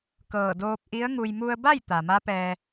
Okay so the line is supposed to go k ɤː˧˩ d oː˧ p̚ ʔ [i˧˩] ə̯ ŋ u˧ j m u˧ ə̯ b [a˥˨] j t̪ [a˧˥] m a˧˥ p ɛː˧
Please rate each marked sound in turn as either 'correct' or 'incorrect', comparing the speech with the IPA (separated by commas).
incorrect, correct, incorrect